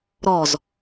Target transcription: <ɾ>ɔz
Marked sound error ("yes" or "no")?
no